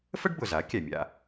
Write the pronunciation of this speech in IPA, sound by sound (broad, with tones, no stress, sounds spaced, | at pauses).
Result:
f ə˥ ɖ b ʊ˩ z a˩˥ kʲ æ˩ mʲ a̰˥˩